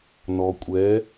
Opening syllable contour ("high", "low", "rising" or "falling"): low